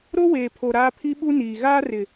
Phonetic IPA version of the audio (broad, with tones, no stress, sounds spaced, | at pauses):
ɾ o˦ w eː˨ pʰ o˨ ɾ aː˦ pʰ i˦ ɓ u˦ n iː˨ ɣ aː˦ r ɪ˨